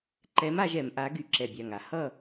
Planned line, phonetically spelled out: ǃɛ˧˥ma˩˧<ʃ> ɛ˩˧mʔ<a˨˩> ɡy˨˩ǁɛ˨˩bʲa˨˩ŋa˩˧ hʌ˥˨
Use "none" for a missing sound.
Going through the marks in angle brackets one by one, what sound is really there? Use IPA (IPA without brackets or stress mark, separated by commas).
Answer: ʒ, a˧˥